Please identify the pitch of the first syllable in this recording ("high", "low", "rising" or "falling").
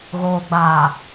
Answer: low